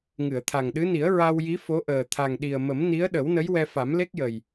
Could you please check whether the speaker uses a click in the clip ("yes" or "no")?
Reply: no